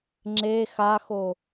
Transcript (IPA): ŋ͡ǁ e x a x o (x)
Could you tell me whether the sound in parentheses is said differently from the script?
yes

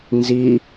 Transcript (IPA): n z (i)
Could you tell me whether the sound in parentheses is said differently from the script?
no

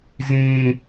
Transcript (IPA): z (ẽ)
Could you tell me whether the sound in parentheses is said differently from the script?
yes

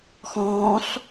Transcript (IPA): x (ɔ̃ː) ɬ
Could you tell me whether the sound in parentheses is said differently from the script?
no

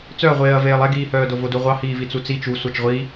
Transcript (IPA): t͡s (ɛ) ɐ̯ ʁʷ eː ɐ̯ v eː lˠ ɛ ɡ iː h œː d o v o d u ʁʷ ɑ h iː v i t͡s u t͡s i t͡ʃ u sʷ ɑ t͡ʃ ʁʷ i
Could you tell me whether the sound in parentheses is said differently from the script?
yes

